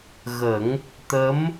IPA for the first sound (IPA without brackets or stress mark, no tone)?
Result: ɣ